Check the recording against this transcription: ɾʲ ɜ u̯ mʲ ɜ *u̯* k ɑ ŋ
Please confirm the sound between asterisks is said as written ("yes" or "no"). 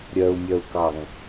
yes